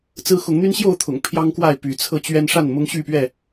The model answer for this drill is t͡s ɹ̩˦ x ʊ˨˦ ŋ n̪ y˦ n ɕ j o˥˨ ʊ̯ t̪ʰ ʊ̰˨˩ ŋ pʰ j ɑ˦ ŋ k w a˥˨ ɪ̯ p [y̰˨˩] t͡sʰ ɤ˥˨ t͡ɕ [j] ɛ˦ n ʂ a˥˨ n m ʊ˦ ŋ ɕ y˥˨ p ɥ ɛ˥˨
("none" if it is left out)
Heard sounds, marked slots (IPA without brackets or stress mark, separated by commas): y˨˦, ɥ